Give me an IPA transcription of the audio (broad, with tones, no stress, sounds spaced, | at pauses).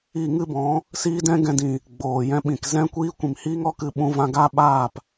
i˦˨ ŋ ɨ˦ b ɔ̃˨˦ | s iː˦ d ɛ̃˦ ɡ ɛ̃˧ d ĩ˨ | ɡ͡b oː˨ j ɛ̃˦ ɓ ĩ˨ k z ɛ̃˦ kʷ iː˦ kʷ ĩ˨ m h iː˦ ŋ ɔ˦ k ɨ˦ ɓ ũ˦ v ã˦ ɡ aː˦ ɓ aː˦˨ p